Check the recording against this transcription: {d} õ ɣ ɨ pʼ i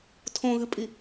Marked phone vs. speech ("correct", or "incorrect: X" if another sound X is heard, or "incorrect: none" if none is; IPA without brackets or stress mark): incorrect: tʰ